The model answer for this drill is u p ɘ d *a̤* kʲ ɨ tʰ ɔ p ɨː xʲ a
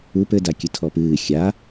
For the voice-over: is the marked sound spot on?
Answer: no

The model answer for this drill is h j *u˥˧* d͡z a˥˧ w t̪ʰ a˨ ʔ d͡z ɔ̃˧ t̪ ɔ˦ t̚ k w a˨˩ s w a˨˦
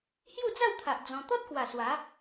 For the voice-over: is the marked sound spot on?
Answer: yes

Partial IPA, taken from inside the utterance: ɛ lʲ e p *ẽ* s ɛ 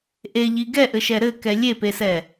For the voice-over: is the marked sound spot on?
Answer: no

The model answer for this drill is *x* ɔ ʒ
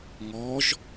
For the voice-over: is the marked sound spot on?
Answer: no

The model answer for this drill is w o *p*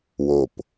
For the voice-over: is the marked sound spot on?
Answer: yes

